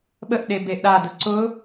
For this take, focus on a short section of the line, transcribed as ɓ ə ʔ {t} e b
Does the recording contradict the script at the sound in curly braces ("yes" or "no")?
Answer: yes